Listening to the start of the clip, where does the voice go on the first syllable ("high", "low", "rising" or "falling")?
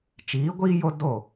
rising